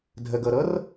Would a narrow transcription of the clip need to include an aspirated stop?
no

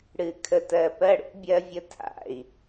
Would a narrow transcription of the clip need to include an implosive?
no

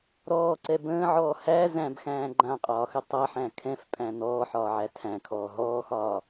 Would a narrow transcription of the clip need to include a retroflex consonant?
no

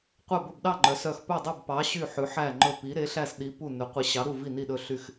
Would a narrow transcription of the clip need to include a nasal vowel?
no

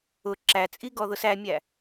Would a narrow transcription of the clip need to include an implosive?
no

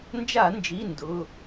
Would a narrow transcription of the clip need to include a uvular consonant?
no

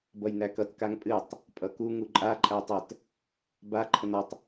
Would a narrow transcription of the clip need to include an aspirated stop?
yes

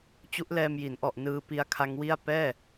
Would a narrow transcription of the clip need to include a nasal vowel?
no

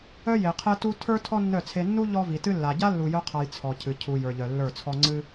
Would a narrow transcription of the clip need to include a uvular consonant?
yes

